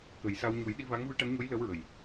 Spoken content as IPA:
kə˨˩˦j sa˧w ɲu˨˩˦jɗi˧ va˧˥ŋvɨ˧˥ʈa˧˥nɲo˧˥j lə˧˥wɹə˨˩j

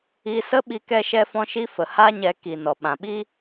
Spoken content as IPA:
i˧sə˦ ɓi˧kɛ˧ʃɛ˧fɔ̃˧ ʃi˧fə˨ ha˦ɲɛ˧ ki˨ nɔ˨ɓã˨ɓi˦

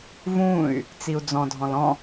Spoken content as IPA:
vũy̯ | t͡siu̯d͡zɔ̃dʱɔ̃l ɔ̃

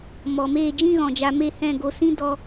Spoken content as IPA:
mɔ˨meː˦˨ d͡ʒĩ˦ɣɔ̃˨d͡ʒa˧me˦˨ hɛ̃˦˨ɡo˧sĩ˦ dɔ˦

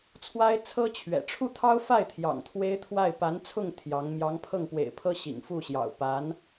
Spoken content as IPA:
t͡sʰwa˥ɪ̯t͡sʰɤ˥ t͡ɕʰɥɛ̰˨˩ ʈ͡ʂʰu˥˩t̪ʰɑ˥ʊ̯fa˥˩ɪ̯ t̪ʰjɑ̰˨˩ŋt̪ʰwe˥ɪ̯ t̪ʰwa˥˩ɪ̯ pa˧˥nt͡sʰʊ˥˩ŋ t̪ʰjɑ˧˥ŋ mjɑ˧˥ŋpʰɤ˥˩ŋpwḛ˨˩ɪ̯pʰɤ˥ ɕḭ˨˩ŋfu˥˩ɕjɑ̰˨˩ʊ̯ pa˧˥n

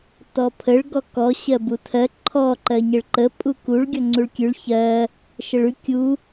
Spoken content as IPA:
tɔpʰəɭ ɡɔkɔ ɕɜbutʰɜ ǃʰɔ ǃɜɲəɭǃə pʼukuɭ ɡʲɔŋ͡ǀuɭkʲʉɭ çɜ | ʃəɭʉ kʲu

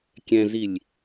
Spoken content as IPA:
kʲɛ̃zilʲ

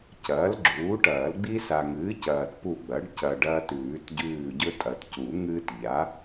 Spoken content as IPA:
cɐː˩˥lɡ͡ǁuː˩˥ʈɐː˨˩˦l ɡ͡bi˦sa˨ŋɨː˩˥ cɐː˨t pu˦˨ɡ͡bɐ˩˥ɖ cɐ˨ ɖɐː˦tʉː˨˩˦tɟʉː˦˨ ɟɵ˦tʼɐ˨tcu˨˩˦ ŋɨː˦tʎa˩˥

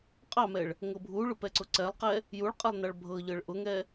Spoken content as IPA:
qʼɑmɛɭ | ŋɤbʱuɭʊ pɛǀʊǀɛlˠqɛ | juɭqʼɛlˠ nɑɭbʱɤʎɤɭ ʔʊŋɛ

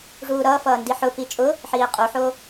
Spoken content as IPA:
ʐuːɾʌːfʌː ndiħʊ pit͡ʃʼʊ | ħiːqʼuħo

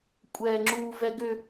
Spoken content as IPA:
kʷʼɛːŋ͡ǁuːvɛɡʏ

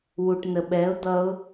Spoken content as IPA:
wuʈnəɓɛʊ̯ d̪ʌʊ̯

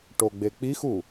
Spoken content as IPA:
ʈoɡ͡bek͡pixu

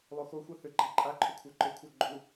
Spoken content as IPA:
lˠoxoxʷa θʏ ɡ͡ǃaǃʼaǃʰʏ kʷʰaǃʏkʷʰæ ɡ͡ǃu

